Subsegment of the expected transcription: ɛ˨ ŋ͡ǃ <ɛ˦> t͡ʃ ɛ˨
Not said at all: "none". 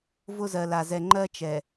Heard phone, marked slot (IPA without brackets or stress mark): ɜ˦